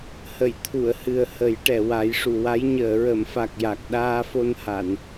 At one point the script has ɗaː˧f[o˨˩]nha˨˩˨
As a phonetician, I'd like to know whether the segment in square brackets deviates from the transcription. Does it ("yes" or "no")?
yes